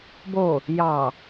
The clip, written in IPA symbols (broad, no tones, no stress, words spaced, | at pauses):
bo | jɑ